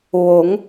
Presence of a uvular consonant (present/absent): absent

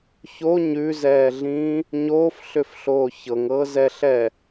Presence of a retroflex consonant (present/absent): absent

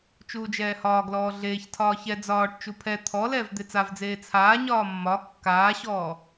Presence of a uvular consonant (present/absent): absent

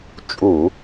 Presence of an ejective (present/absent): present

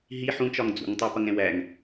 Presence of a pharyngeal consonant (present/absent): present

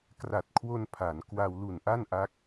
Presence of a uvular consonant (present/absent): absent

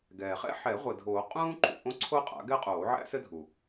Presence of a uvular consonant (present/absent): present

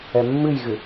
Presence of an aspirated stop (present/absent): absent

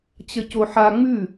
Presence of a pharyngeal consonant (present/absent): present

